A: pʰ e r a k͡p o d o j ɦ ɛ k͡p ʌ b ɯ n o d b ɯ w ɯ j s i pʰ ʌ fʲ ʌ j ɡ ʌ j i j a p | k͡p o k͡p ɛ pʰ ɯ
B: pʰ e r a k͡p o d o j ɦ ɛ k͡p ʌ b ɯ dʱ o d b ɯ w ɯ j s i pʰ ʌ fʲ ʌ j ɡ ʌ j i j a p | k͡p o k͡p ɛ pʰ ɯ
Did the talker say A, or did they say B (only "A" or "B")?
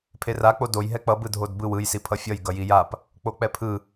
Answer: B